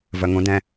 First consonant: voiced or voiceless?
voiced